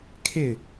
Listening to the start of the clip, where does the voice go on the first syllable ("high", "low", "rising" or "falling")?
falling